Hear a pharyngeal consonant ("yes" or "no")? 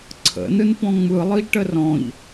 no